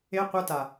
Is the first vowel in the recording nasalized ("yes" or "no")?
no